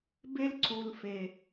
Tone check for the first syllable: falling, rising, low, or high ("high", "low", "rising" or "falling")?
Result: high